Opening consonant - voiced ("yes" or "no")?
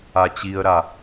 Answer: no